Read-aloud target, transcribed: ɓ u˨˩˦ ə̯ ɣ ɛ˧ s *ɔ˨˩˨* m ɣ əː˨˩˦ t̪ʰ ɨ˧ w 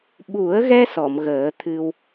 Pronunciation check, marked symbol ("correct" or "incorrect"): correct